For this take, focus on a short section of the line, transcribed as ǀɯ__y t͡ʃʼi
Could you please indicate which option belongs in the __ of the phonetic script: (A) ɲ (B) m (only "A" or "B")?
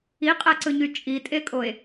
A